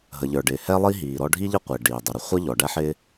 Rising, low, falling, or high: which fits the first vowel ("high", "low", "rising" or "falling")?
low